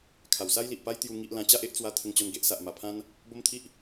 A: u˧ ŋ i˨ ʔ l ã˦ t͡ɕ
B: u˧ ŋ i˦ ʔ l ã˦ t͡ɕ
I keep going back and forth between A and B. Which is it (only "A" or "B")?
B